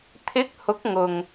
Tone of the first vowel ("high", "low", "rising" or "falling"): rising